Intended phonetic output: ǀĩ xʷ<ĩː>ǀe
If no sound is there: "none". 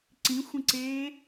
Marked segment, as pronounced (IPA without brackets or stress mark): ĩ